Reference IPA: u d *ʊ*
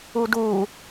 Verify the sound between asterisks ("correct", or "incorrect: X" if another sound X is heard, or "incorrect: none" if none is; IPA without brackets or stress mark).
incorrect: u